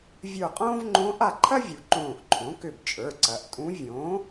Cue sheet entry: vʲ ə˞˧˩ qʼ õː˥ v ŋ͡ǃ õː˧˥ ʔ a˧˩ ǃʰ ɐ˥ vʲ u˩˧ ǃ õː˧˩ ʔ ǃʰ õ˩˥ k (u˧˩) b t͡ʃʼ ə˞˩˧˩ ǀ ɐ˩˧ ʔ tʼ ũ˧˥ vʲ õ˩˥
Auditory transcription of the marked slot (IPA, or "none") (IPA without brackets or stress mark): ʏ˧˩